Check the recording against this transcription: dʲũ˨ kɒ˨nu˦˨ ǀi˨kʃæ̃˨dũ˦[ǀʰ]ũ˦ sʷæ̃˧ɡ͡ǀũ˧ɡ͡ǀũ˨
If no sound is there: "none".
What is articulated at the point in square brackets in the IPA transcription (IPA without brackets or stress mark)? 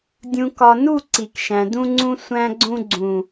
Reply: ŋ͡ǀ